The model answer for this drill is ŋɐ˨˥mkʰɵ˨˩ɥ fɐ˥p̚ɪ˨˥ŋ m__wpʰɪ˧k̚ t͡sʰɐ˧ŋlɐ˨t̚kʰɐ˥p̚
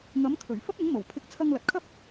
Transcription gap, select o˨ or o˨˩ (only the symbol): o˨˩